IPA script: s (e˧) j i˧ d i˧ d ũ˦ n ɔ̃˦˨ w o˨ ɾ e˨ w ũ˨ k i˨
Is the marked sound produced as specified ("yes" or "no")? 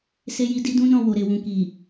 yes